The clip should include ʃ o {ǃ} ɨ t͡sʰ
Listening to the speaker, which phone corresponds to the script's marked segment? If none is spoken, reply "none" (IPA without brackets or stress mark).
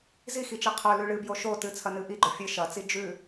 t